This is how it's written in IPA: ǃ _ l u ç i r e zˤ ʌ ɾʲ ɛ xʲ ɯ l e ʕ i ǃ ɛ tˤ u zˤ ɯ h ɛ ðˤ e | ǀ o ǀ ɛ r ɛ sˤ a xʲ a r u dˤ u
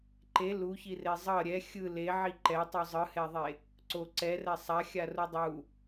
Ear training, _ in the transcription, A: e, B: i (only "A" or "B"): A